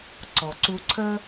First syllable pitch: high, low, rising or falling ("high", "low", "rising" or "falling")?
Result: low